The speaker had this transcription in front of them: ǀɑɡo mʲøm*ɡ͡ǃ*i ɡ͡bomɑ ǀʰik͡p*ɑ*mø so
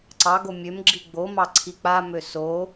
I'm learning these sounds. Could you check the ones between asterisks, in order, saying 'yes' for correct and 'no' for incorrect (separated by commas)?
no, no